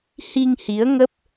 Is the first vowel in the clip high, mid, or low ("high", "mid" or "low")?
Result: high